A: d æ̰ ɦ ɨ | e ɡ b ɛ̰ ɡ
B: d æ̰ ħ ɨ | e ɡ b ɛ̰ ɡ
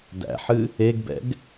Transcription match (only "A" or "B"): B